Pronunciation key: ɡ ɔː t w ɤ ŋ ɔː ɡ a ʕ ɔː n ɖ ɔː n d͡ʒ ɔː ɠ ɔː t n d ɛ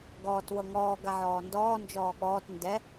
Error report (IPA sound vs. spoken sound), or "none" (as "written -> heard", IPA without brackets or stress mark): ɖ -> d